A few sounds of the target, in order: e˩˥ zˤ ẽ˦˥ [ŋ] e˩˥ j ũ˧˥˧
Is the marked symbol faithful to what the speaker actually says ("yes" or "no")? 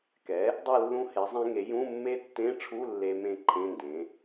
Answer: yes